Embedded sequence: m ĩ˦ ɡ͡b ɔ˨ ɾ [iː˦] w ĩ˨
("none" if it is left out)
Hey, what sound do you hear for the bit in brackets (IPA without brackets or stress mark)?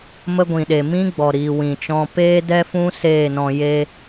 iː˨